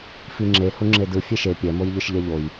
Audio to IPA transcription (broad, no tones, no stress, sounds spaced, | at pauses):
f i ŋ͡ǁ e h u ŋ͡ǁ e d ɯ fʲ e ʃ e pʲ ɛ m o j ʎ ɯ ʃ ʎ ɛ ʎ o j